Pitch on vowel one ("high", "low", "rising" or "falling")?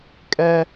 high